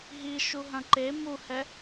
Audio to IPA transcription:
ɦ i ʃ u ɦ ɐ̃ ǃ e m u h ɛ

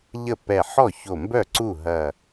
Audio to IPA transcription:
ʎ ə˥˩ p ɛ˧˩ ħ ɔ˥˩ ç o˧˩ m b œ˥˩ ǀ u˥˩ ɦ ɐ˧˩

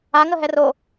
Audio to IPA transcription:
a ŋ ə ɦ ɛ r o

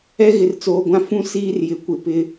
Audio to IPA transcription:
ɛ˦ ɣ ɪ˨ r t͡s oː˨ ɡʷ ã˦ f ũ˦ s iː˦ r j ɪ˨ kʷ ɪ˨ p ɪ˦

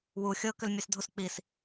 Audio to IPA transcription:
w u xʲ ɤ k ʏ l mʲ ɛ s dʱ u s k͡p i s

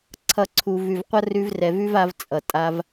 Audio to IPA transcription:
ǀʰ ʌ˨ ǀʰ u˨ v ʉ˨ v qʷ ʌ˦ r ʉ˧ v r ɛ˨ v ʉ˦ v a˧ v t͡sʼ ʌ˨ tʼ a˧ v

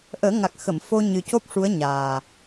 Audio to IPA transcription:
ʔ əː˨˩˦ ŋ a˨˩ k̚ x ə˨˩˨ m f o˧ ɲ ɨ˨˩ c o˦˥ p̚ ʂ u˧˥ ə̯ ɲ aː˨˩

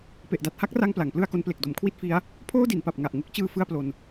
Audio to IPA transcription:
p e˨˩ ʔ d a˨˩ t̚ h a˦˥ k̚ r a˧ ŋ p l a˩˦ ŋ p l ɯ˥˩ a̯ k o˦˥ n p l e˨˩ k̚ d o˩˦ m kʰ w i˥˩ t̚ f i˦˥ a̯ | pʰ oː˥˩ d i˩˦ n p a˨˩ p̚ ŋ a˨˩ ʔ ŋ u˦˥ k̚ t͡ɕ ɯː˧ f ɯ˥˩ a̯ p l o˧ n

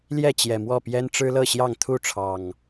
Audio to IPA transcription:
l j ɛ˥˨ t͡ɕ j ɛ˨˩ m w ɔ˥˨ p j ɛ˦ n ʈ͡ʂ ɻ̩˦ l ɤ˥˨ ɕ j ɑ˥˨ ŋ t̪ʰ u˥˨ ʈ͡ʂʰ ɑ˨˩ ŋ

